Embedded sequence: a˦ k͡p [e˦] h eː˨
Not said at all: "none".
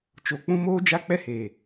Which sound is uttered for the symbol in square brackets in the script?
ɛ˦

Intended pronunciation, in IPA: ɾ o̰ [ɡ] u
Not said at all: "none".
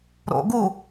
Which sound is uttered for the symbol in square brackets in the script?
ɡ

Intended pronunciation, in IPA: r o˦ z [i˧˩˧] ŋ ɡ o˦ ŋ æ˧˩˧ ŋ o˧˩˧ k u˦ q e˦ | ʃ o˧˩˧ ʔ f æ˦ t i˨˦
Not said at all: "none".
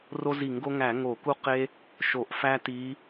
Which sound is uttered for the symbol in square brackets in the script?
i˧˩˧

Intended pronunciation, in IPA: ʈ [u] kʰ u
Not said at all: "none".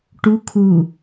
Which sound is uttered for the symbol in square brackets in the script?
u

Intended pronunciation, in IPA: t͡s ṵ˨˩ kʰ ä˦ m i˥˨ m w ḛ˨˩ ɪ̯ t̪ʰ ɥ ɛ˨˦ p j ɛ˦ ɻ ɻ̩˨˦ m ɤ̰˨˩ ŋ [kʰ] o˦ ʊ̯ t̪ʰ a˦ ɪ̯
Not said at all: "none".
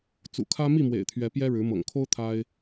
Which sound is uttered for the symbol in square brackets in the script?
kʰ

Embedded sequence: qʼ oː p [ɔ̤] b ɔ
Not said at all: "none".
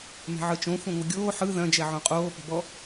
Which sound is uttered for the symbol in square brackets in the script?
ɔ̤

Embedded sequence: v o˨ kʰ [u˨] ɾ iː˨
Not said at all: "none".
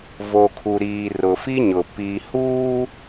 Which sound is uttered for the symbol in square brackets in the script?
u˨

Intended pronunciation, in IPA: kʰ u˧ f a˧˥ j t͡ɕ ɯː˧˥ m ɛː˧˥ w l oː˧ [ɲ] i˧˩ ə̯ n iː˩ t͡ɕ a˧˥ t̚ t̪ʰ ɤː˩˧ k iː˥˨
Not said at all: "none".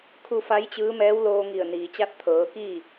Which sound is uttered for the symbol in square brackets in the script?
ŋ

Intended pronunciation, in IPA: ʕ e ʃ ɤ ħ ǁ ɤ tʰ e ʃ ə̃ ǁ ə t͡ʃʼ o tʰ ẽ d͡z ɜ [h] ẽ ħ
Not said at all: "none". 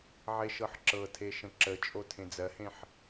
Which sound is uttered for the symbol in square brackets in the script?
h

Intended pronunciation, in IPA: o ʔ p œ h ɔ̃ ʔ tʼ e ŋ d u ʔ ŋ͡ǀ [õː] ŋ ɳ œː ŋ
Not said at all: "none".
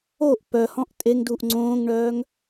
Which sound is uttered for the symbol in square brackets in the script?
õː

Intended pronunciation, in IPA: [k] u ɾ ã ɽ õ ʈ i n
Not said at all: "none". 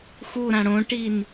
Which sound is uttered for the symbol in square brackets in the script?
x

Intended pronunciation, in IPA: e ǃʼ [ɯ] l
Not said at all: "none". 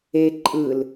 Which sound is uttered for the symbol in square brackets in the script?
ɯ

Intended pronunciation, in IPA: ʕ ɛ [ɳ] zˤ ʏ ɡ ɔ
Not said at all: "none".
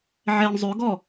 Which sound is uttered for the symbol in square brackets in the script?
ɳ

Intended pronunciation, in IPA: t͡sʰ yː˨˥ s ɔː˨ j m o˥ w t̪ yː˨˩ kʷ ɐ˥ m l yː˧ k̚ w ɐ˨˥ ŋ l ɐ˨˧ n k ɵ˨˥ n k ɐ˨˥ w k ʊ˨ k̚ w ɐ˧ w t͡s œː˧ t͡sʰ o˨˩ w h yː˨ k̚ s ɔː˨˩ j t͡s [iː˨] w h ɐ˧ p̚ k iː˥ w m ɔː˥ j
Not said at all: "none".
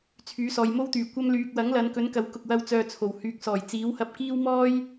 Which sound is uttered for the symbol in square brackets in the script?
iː˨˥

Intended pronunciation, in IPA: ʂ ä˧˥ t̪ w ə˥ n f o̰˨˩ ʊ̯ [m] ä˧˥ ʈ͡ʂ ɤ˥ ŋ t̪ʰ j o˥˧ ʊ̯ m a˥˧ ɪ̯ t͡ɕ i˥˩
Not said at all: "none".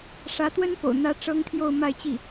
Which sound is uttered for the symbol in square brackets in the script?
n̪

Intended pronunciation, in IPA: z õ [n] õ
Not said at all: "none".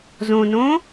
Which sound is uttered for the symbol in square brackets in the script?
n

